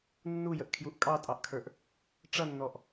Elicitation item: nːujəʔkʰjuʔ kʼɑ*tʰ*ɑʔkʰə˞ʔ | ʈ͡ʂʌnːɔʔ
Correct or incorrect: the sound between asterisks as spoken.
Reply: incorrect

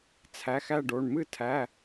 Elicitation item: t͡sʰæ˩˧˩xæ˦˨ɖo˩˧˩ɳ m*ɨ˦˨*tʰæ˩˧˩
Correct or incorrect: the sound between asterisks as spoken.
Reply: correct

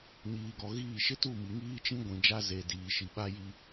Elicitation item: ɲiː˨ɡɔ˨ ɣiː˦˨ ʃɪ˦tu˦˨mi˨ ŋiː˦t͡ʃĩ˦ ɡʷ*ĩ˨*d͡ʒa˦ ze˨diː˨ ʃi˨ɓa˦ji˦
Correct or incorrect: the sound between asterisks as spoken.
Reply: correct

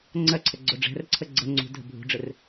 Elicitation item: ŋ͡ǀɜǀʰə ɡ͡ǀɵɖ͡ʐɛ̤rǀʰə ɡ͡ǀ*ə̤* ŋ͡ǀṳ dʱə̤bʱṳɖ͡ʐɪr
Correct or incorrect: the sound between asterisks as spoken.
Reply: incorrect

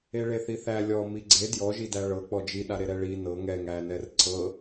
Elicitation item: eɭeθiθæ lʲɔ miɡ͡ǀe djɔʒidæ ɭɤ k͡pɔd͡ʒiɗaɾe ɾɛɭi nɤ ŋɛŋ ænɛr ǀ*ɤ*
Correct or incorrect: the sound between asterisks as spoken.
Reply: correct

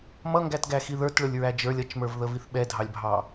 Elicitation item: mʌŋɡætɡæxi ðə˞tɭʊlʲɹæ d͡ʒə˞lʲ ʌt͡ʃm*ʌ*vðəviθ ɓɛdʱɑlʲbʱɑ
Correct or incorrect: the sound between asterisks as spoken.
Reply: incorrect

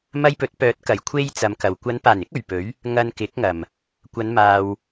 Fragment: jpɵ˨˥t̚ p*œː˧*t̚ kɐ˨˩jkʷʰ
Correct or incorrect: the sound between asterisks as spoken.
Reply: incorrect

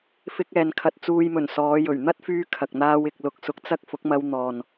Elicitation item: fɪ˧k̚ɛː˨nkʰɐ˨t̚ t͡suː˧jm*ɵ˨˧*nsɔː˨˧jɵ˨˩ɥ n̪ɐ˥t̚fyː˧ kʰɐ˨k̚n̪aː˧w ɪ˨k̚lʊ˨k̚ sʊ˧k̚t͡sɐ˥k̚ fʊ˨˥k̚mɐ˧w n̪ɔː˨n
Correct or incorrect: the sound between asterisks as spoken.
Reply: incorrect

